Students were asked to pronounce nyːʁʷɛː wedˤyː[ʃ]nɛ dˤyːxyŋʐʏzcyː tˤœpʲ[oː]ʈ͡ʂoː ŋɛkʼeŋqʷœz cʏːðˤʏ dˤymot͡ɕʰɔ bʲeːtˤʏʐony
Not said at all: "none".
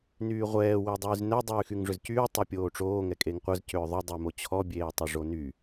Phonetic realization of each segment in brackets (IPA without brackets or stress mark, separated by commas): z, oː